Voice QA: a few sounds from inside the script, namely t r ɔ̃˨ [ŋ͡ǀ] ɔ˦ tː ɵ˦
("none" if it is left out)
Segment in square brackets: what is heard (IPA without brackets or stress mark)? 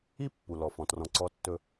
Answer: ǀ